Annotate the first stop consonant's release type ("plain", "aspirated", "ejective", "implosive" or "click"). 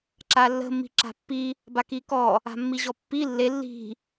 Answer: click